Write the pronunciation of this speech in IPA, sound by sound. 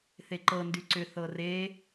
θ e ǃ ɤ n d y ǀ ʏ θ ɤ r e

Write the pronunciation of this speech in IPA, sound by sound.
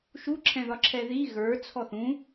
ʃ u ǁʰ ɛ̃ ð ɒ ǁʰ ɛ ð i ɣ ə˞ t͡sʰ ɔ θ ũ

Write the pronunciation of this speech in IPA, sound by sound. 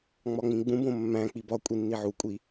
ŋ͡m ɒ ŋ͡m ĩ ɡ͡b ũ b õ mː æ̃ k͡p i b ɒ kʷʼ i nː i ʕ u kʷʼ i

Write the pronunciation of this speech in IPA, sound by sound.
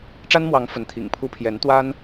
ʈ͡ʂ a˥ n m w ɑ˧˥ ŋ f ə˧˥ n t̪ʰ ḭ˨˩ ŋ pʰ u˥ pʰ j ɛ˧˥ n t̪ w a˥ n

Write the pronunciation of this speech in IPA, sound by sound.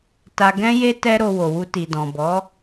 t a˧ ɡ ɛ̃˦ j e˦ t ɛ˦ ɾ o˧ w o˨ w u˧ t i˨ d ɔ̃˨ b ɔ˨˦

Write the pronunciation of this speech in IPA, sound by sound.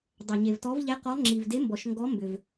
dˤ ɛ˩ ɲ e˩ v t ɔ˨˦ v ʎ ɛ˨˦ q ɔ˨˦ ŋ͡ǁ i˩ v d e˨˦ m b ɔ˩ ʃ ŋ ɡ ɔ˨˦ m b ʏ˩ v

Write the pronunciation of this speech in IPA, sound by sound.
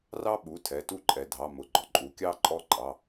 r ɑ˦ ɓ u˩˧˩ tʰ ɛ˩˧˩ t u˦˨ ǃʼ ɛ˩˧ dʱ ɑ˩˧˩ m ʊ˩ ɡ͡ǃ ɔ˩ ǃʼ u˩˧ kʲ ɑ˦˨ ǃʼ ɔ˦˨ ǃʼ ɑ˩˧˩

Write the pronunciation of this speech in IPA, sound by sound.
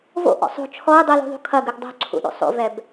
v o̰ ʔ ɔ̰ sˤ o̤ t͡ʃʰ ɔ ɪ̯ dˤ i l ṳ ðˤ ṳ kʰ ɐ ɡ ʉ ɡ dˤ o̤ ǀʰ ṵ ɗ o̰ sˤ o̰ v ɛ b

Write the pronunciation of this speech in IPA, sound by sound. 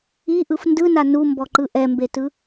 i ʔ ɯ f n d ɯ n a n u m b ɔ ǃ ɯ ʔ ɛ m b e t ɯ

